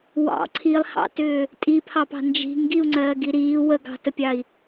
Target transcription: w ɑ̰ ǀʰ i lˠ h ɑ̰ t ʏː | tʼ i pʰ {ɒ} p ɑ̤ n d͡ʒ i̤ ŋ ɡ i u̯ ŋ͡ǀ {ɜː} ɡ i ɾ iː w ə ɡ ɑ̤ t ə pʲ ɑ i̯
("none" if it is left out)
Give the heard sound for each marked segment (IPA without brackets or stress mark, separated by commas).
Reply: ɑ, ɜː